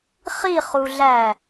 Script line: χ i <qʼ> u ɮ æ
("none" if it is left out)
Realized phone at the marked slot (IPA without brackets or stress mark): χ